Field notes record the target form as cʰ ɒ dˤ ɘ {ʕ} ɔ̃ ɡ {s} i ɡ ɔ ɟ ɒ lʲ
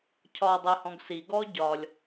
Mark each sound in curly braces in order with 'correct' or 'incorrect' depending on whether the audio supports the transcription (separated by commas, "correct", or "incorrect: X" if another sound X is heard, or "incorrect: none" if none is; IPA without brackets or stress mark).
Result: incorrect: h, correct